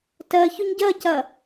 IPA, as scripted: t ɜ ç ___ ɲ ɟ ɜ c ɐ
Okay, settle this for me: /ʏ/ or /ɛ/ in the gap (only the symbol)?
ʏ